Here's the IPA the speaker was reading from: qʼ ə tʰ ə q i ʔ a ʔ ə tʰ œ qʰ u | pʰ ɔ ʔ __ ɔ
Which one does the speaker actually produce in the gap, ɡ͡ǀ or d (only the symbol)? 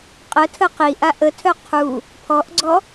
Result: ɡ͡ǀ